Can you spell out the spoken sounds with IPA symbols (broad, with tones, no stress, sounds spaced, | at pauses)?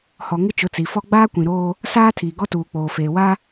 h ɔ˨ ŋ ɪ˦ t͡ʃ ʊ˨˦ t͡s i˨ f ɔ˦ ɡ͡b aː˦ kʷ ĩ˨ ɾ oː˦ | s aː˦ tʰ iː˨ ɡ ɔ˦ t uː˨ k͡p oː˨ f eː˨ w a˦